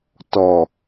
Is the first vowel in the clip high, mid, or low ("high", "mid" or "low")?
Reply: mid